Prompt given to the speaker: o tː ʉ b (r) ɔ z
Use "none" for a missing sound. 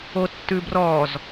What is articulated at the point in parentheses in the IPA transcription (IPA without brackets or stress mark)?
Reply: r